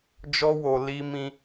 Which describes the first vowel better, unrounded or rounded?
rounded